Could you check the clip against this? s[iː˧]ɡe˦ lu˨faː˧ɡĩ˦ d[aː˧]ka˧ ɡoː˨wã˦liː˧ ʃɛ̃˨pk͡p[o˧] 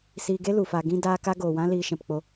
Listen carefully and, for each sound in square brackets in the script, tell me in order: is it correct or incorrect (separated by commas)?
correct, correct, correct